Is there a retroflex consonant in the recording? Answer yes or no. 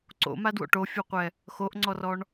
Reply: yes